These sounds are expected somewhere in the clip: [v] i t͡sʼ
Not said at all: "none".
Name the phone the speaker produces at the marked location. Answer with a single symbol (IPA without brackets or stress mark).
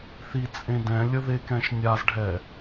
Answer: θ